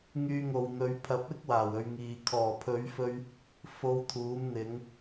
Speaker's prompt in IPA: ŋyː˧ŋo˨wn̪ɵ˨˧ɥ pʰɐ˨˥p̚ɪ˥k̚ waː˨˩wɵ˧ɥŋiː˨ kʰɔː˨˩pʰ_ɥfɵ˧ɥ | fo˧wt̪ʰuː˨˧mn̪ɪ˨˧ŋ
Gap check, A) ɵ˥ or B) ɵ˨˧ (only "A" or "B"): B